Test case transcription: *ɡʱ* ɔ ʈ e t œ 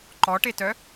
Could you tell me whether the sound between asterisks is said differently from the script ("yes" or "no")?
yes